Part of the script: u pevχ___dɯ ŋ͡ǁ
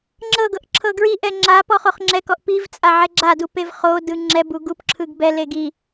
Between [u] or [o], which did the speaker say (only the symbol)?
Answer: o